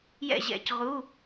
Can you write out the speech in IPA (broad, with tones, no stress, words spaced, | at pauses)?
jɛ̰˥˨ʑɛ̰˧˥cʁu˧˥˧